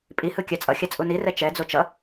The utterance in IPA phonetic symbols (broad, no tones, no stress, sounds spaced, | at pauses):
pʼ i h ɯ kʲ a t͡sʼ ʌ xʲ a t͡sʼ u n i r ɛ t͡ʃ ɛ d͡z o t͡ʃ ʌ